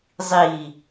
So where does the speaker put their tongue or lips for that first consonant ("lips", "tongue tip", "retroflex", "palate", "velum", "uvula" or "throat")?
tongue tip